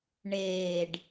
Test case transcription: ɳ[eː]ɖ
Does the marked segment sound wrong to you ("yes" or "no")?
no